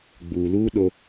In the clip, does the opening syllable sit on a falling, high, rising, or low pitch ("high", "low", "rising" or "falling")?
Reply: low